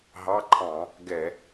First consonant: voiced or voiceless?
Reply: voiced